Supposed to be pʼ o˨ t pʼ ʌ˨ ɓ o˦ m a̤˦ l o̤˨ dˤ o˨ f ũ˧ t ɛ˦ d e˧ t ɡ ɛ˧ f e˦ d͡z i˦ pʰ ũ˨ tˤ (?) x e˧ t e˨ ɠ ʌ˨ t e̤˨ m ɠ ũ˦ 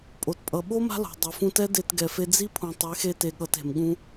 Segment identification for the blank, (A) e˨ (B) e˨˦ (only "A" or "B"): B